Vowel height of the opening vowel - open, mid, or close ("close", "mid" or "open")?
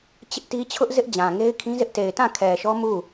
close